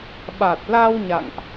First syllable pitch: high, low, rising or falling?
low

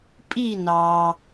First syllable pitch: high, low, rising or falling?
falling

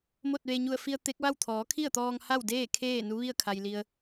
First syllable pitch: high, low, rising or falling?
falling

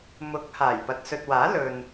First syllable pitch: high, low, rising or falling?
rising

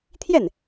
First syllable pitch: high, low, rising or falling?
falling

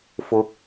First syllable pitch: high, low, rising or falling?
rising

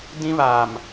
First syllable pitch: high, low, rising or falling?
high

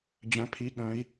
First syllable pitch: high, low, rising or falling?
rising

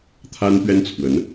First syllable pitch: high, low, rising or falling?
high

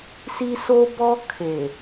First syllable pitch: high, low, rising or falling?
high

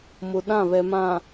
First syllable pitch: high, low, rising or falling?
low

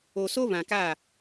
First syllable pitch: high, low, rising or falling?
low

